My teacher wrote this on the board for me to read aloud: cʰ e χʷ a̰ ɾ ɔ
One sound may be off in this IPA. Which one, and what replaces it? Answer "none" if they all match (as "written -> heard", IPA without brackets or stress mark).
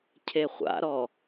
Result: none